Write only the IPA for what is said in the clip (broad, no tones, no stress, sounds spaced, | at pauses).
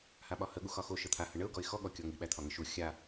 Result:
h a ɓ ɒ h ə ɠ u x ɒ x o ʃ ə t̪ʰ a h ə ɳ ə ʊ̯ ɡ ɔ ɪ̯ x ɔ ɠ ɔ kʲ ɔ ŋ i ɓ æ t̪ʰ ɒ ŋ ə ʃ u xʲ a